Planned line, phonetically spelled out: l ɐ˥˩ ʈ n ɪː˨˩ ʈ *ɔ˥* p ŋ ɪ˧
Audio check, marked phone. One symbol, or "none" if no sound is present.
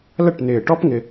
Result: ɔ˥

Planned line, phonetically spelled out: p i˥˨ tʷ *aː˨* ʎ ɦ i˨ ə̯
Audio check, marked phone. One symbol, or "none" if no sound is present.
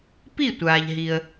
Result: aː˨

